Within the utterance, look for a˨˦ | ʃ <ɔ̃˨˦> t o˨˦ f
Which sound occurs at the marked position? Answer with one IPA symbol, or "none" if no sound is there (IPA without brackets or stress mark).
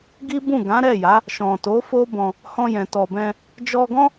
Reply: ɔ̃˨